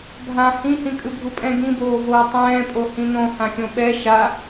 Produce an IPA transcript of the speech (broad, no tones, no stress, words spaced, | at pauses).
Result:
bʱã hĩhĩ kʼɯbʱupʼɛ̃ ɡĩboːvoː tˤɛ̃ːpʼo hĩnõhãxʲõ ɓɛ ʃa